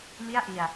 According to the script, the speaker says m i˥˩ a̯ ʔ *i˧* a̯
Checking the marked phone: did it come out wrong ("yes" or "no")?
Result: no